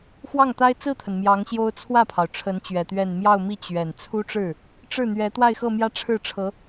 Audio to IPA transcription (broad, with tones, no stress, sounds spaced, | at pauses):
x w ɑ˥˩ ŋ t̪ a˥ ɪ̯ t͡s ɹ̩˥˩ t̪ʰ ə˩ n m j ɑ˧˥ ŋ ɕ j o˥ ʊ̯ t͡sʰ w ä˥˩ pʰ ɑ˩ ʊ̯ ʈ͡ʂʰ ə˧˥ n t͡ɕ ɥ ɛ˨˩ t̪ ɥ ɛ˥˧ n m j ɑ˥˧ ʊ̯ m i˥˩ t͡ɕ ɥ ɛ˨˩ n t͡sʰ u˥ ʈ͡ʂ ɻ̩˥˩ | ʈ͡ʂ ɻ̩˥˩ n̪ ɥ ɛ˧˥ t̪ w a˥˧ ɪ̯ x ɤ˥˧ m j ä˥˧ ʈ͡ʂʰ ɻ̩˥˩ ʈ͡ʂʰ ɤ˧˥